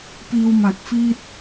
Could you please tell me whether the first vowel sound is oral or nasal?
oral